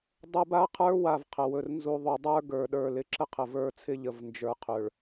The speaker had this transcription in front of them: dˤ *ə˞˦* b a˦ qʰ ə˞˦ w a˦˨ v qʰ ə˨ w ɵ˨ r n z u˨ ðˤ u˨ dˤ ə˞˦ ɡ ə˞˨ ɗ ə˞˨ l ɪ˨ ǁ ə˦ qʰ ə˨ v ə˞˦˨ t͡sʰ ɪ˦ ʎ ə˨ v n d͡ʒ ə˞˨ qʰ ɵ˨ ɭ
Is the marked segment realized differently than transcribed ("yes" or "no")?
yes